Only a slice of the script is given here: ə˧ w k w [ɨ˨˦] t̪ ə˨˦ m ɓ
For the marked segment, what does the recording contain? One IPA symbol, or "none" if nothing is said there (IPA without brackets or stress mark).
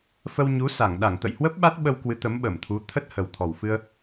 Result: ɨ˨˦